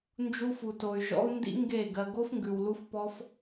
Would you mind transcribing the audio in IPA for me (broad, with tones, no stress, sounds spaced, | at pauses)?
n d͡ʒ u˧ f u˨ t o˨ y̯ ʒ ɔ̰˦ u̯ n d ḭ˦ ŋ ɡ e˦˨ ɡ ɜ˧ ɡ o˦ f ŋ ɡ ʉ˨ w l u˦ f p ɔ˦ f